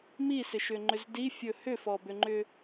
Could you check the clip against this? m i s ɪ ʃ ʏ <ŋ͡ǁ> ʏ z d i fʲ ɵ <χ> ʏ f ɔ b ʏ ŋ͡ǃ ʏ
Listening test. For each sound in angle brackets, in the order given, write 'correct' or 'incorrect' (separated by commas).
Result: incorrect, incorrect